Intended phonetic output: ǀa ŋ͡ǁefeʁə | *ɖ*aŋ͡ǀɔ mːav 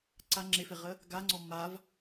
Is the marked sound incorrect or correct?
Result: incorrect: ɡ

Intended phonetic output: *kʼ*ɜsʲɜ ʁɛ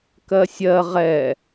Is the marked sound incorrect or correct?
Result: incorrect: k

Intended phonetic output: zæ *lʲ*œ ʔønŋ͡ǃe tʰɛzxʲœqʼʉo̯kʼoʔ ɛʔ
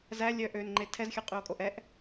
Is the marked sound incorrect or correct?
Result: correct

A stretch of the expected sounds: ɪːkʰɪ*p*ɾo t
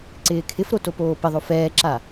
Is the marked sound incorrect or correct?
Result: incorrect: f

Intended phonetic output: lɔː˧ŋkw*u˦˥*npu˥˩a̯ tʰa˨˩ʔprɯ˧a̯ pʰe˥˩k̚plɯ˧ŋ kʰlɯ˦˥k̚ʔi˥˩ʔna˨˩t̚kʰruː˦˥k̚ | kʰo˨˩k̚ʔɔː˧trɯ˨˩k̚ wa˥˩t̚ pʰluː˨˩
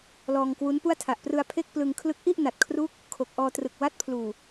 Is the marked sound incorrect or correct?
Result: correct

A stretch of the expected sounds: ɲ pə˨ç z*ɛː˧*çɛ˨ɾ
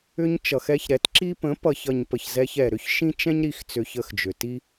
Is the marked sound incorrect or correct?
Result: incorrect: ɛ˧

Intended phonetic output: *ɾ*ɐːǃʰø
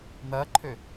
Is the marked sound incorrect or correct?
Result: incorrect: n̪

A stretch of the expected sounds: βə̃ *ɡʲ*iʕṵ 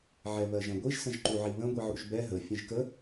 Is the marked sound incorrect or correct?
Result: incorrect: ɡʷ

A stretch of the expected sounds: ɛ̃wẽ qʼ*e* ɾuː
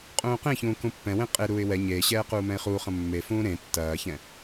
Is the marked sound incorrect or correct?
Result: correct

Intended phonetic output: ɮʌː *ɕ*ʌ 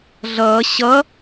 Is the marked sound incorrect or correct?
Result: correct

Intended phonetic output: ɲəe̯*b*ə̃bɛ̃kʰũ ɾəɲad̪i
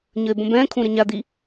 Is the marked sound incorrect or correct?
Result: correct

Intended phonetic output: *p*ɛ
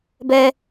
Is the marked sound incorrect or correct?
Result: incorrect: b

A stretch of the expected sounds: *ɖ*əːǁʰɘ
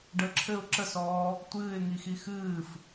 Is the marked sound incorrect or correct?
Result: correct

